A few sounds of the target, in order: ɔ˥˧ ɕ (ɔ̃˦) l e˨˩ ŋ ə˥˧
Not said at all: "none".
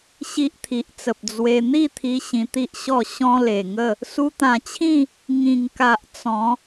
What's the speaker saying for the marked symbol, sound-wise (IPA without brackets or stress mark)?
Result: ɔ̃˦